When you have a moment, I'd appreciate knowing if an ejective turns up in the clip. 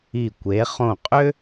yes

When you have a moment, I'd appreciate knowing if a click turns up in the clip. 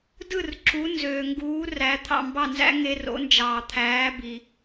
yes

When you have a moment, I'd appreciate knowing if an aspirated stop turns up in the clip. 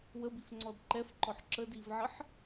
no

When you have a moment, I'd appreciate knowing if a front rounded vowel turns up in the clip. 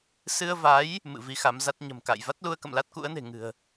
no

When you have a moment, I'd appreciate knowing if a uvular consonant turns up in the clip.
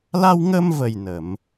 no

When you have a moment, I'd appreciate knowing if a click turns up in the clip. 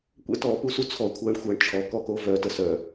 no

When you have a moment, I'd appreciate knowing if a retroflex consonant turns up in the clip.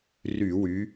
no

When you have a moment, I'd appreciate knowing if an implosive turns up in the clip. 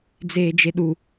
yes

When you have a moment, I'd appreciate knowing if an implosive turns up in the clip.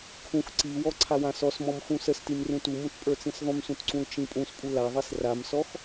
no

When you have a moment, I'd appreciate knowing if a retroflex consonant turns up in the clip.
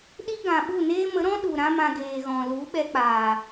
no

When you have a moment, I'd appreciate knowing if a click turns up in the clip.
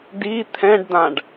no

